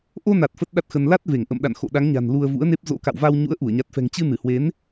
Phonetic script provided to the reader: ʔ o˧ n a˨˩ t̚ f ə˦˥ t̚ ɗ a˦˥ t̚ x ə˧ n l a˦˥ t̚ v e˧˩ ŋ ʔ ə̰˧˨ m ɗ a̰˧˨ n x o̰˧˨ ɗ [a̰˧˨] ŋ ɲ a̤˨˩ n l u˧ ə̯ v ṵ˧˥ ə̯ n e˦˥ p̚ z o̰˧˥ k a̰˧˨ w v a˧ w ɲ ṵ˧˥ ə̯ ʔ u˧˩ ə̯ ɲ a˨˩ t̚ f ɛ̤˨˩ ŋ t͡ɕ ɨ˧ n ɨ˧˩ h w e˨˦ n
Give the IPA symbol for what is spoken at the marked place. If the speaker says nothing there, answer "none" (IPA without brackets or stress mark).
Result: a˨˦